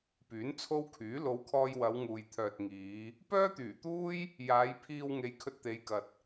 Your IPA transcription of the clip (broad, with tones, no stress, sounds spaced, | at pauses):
p yː˨˥ n t͡sʰ o˥ w kʰ yː˨˥ l o˨˧ w kʰ ɔː˧ j w ɐ˨˧ w ŋ uː˨ j t̪ʰ œː˨ t̚ ŋ iː˨˧ | p œː˥ t̪ yː˨˩ t̪ uː˥ j | j aː˨˧ j pʰ iː˧ w ŋ e˨˧ j kʰ ɵ˧ t̚ t̪ e˨˧ j k ɐ˨ t̚